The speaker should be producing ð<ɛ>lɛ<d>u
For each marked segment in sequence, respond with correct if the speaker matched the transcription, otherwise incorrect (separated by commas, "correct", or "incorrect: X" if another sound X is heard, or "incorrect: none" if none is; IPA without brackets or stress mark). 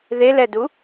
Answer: incorrect: e, correct